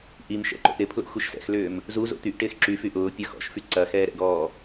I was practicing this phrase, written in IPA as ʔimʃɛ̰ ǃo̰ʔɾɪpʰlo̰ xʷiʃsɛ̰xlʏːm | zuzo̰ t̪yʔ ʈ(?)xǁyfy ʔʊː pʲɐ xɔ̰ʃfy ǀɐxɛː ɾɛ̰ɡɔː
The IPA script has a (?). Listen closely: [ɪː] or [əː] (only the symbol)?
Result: ɪː